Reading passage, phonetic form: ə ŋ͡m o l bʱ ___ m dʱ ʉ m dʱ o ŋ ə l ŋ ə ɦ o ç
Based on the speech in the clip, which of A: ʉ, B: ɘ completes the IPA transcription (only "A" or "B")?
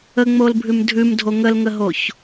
A